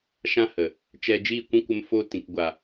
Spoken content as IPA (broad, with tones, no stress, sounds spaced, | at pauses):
ʃ ã˧ h ə˨ | t͡ʃ ɛ˧ d͡ʒ iː˦˨ kʷ ĩ˦ kʷ ə˧ m f oː˧ t ĩ˨ k ɡʷ a˨